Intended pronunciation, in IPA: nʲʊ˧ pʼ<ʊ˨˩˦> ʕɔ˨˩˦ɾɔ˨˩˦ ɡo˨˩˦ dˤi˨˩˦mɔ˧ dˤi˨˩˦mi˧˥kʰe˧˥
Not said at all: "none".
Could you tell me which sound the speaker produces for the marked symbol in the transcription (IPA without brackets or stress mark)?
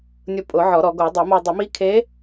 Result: ʊ˨˩˦